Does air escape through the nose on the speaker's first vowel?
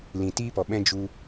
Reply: yes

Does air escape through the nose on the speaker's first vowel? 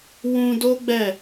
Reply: yes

